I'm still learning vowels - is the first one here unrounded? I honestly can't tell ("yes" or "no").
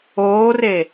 no